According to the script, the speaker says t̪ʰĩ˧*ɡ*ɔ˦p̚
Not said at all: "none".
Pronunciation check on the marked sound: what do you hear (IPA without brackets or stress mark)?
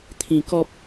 k